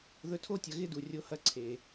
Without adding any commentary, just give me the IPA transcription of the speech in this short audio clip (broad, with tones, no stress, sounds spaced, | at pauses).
ð ɵ˧ tʰ o˥ tʲ ɐ˧ ɣ ɪ˥ d u˩ rʲ o˧ h ɐ˧ ǀʰ e˩